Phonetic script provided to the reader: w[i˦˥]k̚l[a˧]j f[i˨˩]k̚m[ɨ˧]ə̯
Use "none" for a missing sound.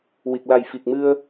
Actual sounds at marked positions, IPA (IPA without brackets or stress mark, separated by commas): i˨˩, a˨˩, i˨˩, ɨ˧